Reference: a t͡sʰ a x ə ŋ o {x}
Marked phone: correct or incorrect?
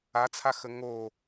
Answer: incorrect